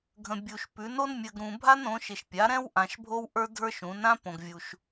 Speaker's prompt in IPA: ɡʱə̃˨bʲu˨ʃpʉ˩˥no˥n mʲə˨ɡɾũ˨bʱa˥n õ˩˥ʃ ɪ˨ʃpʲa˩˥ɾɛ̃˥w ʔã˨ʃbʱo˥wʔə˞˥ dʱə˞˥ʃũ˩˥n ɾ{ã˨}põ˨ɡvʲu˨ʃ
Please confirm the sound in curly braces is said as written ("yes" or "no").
no